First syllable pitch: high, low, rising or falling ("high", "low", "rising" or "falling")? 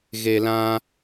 low